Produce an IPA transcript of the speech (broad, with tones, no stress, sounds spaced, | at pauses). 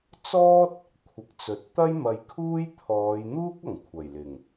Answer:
t͡s ɔː˥ t̚ | kʷʰ ɪ˨˥ k̚ t͡s ɵ˨˥ t̚ t̪ ɐ˥ j m ɐ˨ j kʰ uː˥ j t̪ʰ ɔː˨˧ j n̪ uː˥ k̚ ɐ˨˩ ŋ kʷʰ ɐ˨˩ j l ɪ˨˩ ŋ